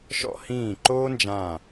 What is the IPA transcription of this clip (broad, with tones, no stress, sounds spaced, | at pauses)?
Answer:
ʃ ɔ̰˧ h ĩː˧˩ ǃ oː˧ n d͡ʒ ã˧˩